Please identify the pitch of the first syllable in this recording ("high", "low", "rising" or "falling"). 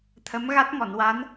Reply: rising